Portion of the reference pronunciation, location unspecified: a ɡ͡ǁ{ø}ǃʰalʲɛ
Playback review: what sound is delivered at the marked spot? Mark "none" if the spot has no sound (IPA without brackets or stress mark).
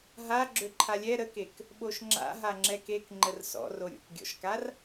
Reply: ø